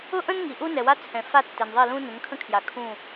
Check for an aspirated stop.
present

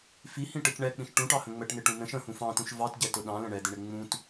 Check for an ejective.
absent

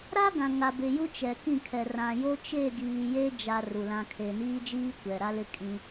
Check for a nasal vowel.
present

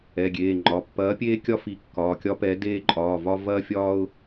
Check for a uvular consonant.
absent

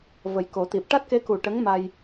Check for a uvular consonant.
absent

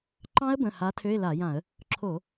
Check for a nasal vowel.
present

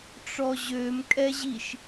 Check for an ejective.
present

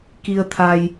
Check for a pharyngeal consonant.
absent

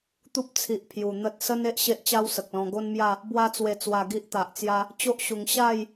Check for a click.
absent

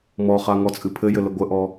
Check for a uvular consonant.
present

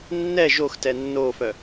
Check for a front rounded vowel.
present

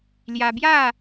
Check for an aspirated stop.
absent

